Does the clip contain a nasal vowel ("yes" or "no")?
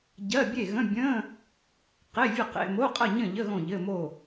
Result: yes